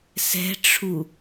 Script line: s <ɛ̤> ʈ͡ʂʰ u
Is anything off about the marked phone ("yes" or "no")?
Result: no